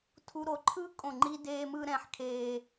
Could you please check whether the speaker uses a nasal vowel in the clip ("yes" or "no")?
yes